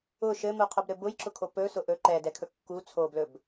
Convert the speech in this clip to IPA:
ʊ ʃɘmuqʰʊbɾɘ bʊjǁʊkʰo pɵsʊ ʔɵ ǃɛdɛkʰɵ kːu t͡sʰoblɵb

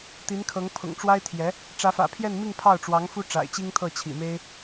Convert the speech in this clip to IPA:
t̪i˧˥nkʰɤ˧˥ŋ pʰʊ̰˨˩ŋʈ͡ʂwa˥ɪ̯t̪ʰjɛ˧˥ | ʈ͡ʂä˧˥fä̰˨˩ pʰjɛ˥˧nmi˥˧ŋ pʰɑ˥˩ʊ̯ʈ͡ʂwɑ˧˥ŋfu˥ ʈ͡ʂa̰˨˩ɪ̯t͡ɕi˥ŋt̪ʰɤ˥˩ t͡ɕʰḭ˨˩me˥ɪ̯

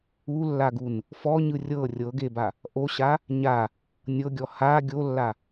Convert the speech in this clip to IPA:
ulːaɡun | fɔɲɯ rʲɤ rʲɤɡeba | ʔoɕa | ɲa | nʲɤɡʲɔ ha ɡʲolːa

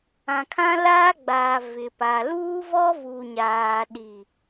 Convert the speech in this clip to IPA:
ã˨kʰã˦laː˦ɡ͡baː˨ vɪ˨pa˨ luː˦vɔ˦vu˨ɲaː˨ ɗi˨

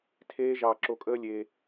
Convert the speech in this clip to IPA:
tʰeː˦ʒɑː˧ ǁo˨kʼəː˧ lʲe˧

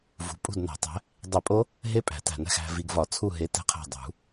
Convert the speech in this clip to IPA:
vṳ˨pʼṳ˦˨dnæ̤˨˩˦tˤæ̤˨˦ | dˤi˨˩˦pʼo˦˥ | ɦe˦˥pʼæ̤˨˩˦tæ̤˨næ̤˦˨x æ̤˨vi˨ɡvɒ˨˩˦ t͡sʰu˦˨ɦe˨˦ tæ̤˦˨qʰæ̤˦˨ dˤṳ˨˩˦

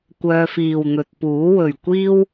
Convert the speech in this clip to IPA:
kʷœː˧fiː˨wn̪ɵ˨t̚puː˨˥ wɵ˨ɥkʷiː˥w

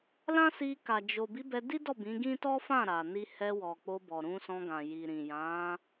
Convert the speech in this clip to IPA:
lã˦si˧ka˨ d͡ʒo˨ bi˨˦bɛ˧di˦dɔ˦˨ bĩ˨˦ɡĩ˦ tɔ˦fã˦˨ɾa˨ni˧ hɛ˧wɔ˨k͡po˧bɔ˨ ɾũ˧sɔ̃˧ɡã˨ ji˨ɾĩ˨jã˨˦

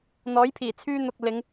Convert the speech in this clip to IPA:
n̪ɔː˨˥j pʰiː˨˩t͡sʰyː˧n̪ʊ˨k̚ lɪ˨˧ŋ

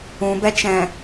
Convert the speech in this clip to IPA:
ũbɛt͡ʃɛ̃

